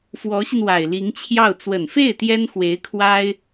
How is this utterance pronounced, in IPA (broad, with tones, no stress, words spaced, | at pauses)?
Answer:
fwɔ˧˥ɕi˧n wa˨˩ɪ̯li˧˥ŋt͡ɕʰjɑ˥˩ʊ̯ t͡swə˨˩nfe˥˩ɪ̯ t̪jɛ˥nxwe˧˥ɪ̯ kʰwa˥ɪ̯